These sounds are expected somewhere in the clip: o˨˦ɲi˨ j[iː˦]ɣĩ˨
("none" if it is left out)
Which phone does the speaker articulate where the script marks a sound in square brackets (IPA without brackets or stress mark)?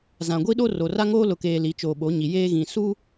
eː˦